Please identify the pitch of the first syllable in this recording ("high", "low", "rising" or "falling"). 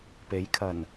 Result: rising